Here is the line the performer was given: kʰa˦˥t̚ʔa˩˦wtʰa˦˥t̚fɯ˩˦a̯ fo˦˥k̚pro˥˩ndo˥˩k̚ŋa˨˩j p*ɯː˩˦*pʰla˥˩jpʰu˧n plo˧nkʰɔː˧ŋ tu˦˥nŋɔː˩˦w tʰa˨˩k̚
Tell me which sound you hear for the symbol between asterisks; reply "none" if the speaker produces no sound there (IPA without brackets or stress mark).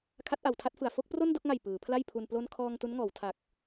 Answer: ɯː˩˦